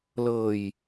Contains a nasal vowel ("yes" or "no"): no